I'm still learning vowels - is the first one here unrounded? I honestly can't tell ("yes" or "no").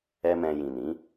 yes